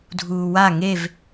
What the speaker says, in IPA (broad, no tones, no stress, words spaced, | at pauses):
dʱuːwa ŋev